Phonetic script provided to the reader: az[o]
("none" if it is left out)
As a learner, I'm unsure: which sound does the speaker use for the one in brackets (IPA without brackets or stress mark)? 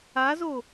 o